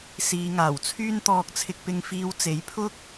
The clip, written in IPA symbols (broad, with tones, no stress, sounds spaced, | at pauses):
s iː˨˧ ŋ aː˨˩ w t͡sʰ yː˥ n t̪ ɔː˧ k̚ t͡sʰ ɪ˧ k̚ p ɪ˧ ŋ f iː˧ w t͡s e˨˥ j pʰ ʊ˥ k̚